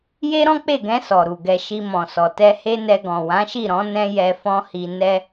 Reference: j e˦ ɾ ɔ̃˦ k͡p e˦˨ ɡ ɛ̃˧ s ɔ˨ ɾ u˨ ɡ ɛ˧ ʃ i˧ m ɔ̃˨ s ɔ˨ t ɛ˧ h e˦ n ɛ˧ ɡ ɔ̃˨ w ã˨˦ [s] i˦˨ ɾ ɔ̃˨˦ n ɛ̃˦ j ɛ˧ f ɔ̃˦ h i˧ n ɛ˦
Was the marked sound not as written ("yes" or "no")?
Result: yes